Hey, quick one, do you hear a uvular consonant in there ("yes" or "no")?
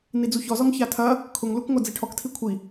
no